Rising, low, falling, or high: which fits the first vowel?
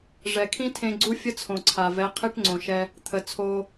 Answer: low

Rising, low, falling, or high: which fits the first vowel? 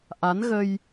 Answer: rising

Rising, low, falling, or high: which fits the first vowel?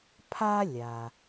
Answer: high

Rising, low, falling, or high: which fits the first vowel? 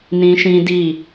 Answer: high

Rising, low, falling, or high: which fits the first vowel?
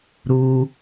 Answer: high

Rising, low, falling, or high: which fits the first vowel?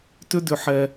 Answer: high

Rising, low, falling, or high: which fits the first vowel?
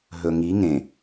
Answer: low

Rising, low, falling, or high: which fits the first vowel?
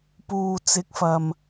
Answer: low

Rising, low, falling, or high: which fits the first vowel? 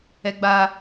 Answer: high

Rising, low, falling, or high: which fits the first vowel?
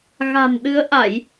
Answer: low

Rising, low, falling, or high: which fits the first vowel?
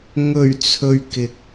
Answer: low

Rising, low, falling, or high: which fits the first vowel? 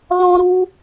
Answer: high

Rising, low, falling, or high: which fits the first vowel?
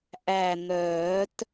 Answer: low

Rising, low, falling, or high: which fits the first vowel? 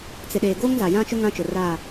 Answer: low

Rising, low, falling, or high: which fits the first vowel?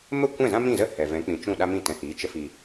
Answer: falling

